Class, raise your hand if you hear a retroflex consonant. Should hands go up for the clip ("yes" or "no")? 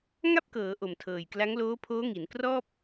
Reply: no